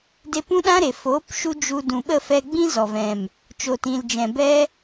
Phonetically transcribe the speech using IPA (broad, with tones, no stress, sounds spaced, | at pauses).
d e˧ p ũ˦ ɗ ã˦ ɾ e˨ f oː˨˦ p ʃ u˧ d͡ʒ u˧ d ũ˨ ɓ ə˦˨ f ɛ˧ ɡ͡b ĩ˦ z ɔ˨ v ɛ̃˨ m | t͡ʃ oː˨ t ĩ˨ l d͡ʒ ɛ̃˨ b ɛ˦